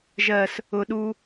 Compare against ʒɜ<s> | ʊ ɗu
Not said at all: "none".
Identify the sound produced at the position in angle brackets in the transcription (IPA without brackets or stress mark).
s